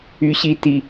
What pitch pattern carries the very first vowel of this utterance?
high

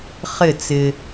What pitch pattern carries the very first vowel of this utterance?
falling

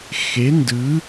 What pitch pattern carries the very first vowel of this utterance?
rising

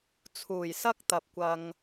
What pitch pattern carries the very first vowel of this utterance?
low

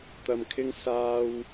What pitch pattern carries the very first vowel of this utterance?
low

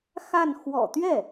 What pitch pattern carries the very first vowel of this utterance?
falling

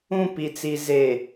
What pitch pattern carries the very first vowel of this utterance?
falling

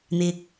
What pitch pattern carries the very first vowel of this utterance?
low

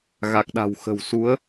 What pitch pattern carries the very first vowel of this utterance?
low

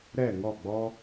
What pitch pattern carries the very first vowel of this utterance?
falling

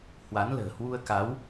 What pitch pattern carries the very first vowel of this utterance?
rising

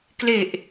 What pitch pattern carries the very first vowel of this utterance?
low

